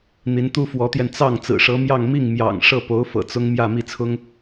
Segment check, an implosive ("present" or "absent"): absent